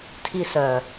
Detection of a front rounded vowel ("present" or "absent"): present